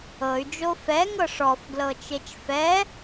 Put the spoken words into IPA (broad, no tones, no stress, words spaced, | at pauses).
ɤy̯d͡ʒo fɛŋɤ ʂɔfɡlɤt͡ʃet͡ʃ fɛ